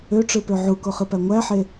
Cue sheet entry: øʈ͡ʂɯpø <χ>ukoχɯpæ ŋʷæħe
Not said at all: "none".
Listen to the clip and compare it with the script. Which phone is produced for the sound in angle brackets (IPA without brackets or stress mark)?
ʕ